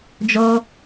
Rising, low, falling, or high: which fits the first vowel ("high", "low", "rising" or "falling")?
high